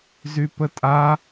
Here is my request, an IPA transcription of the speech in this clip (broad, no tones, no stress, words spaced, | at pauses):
zypətʼa